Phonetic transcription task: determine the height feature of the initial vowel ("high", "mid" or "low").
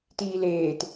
high